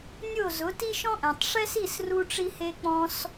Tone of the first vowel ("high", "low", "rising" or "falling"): falling